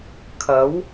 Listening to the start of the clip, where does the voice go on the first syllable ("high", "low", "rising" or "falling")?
rising